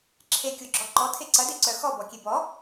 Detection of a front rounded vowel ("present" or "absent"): present